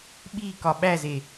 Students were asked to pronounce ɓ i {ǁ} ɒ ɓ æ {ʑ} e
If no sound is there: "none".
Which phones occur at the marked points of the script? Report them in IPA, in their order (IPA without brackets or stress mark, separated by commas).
k, z